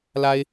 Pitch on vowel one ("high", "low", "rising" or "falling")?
high